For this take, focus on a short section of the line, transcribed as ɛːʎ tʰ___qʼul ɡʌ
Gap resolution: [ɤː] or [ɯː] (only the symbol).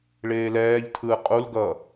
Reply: ɯː